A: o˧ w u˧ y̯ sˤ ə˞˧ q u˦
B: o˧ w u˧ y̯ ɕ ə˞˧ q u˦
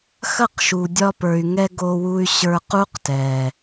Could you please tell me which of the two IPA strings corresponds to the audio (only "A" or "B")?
B